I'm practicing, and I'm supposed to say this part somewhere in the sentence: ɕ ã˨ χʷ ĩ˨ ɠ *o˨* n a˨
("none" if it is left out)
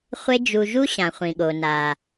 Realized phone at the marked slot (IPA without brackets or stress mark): o˨